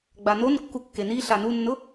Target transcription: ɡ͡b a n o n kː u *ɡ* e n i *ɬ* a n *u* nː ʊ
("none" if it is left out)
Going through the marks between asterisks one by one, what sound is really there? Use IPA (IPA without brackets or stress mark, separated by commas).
kː, ɬ, u